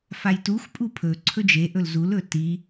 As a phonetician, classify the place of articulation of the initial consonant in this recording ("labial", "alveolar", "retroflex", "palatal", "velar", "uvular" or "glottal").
labial